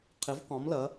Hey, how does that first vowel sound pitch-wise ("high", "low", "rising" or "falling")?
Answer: rising